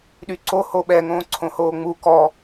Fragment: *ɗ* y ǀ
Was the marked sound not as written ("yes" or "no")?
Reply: no